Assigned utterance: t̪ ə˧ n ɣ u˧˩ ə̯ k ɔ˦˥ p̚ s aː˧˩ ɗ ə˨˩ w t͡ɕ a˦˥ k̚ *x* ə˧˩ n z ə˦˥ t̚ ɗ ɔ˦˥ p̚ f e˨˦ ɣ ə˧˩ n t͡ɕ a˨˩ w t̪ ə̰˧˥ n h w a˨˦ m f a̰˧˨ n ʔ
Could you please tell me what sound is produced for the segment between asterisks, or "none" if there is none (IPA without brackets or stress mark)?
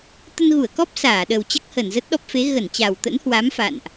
h